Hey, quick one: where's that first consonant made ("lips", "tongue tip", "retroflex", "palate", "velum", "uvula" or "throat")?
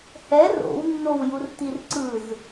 throat